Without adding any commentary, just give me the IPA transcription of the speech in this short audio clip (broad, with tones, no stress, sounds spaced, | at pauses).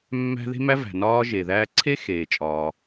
mː æ̤˥ ð e̤˥ m æ˥ v æ̤˩ n ɒː˥ ʒ e˩ ð æː˥ ǀʰ e˥ x eː˩ t͡ʃʼ ɒː˩